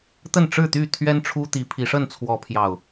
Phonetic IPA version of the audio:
t̪ ə˥˨ n ʈ͡ʂ ɻ̩˥˨ t̪ y˥˨ t̪ʰ ɥ ɛ˦ n ʈ͡ʂʰ u˦ t̪ i˨˦ pʰ i˨˦ ʂ ə˥˨ n t͡sʰ w ɔ˨˦ pʰ j ɑ˨˩ ʊ̯

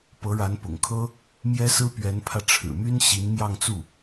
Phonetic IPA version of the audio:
p ɤ˧˥ ɻ a˧˥ n p ʊ̰˨˩ ŋ kʰ ɤ˥ | m j ɛ˥ s ɹ̩˥ p ɥ ɛ˧˥ n pʰ ä˧ ʈ͡ʂʰ ɻ̩˨˩ m y˥ n ɕ i˧˥ n m j ɑ˥˧ ŋ t͡s u˥˩

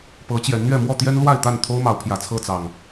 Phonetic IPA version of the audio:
p ɤ˨˦ t͡ɕ j ɛ˨˦ n n̪ ɥ ɛ˥˨ m w ɔ˥˨ t̪ j ɛ˦ n l w a˥˨ ɪ̯ t̪ a˥˨ n t̪ʰ o˦ ʊ̯ m ɑ˨˦ ʊ̯ pʰ j ä˨˩ t͡sʰ ɤ˥˨ t͡s ɑ˨˩ ŋ

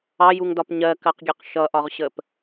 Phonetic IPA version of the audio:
ɑ j u ŋ d ɒ p ɲ ɜ k ɜ q ɡʲ ɛ q ʃ ʌ ʔ ɒ ʁ ɕ ə p

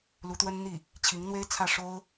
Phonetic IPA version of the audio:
l u˧˥ t̪ w ə˥ n n̪ i˥˩ | t͡ɕʰ i˧˥ ŋ n̪ w e˥ ɪ̯ t͡sʰ ä˥˩ ʂ o˥ ʊ̯

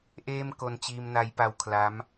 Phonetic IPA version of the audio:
ʔ eː˥˩ m k o˧ n t͡ɕ iː˧ m n a˦˥ j p a˧ w kʰ l a˦˥ m

